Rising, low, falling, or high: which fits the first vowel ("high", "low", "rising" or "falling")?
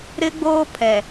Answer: high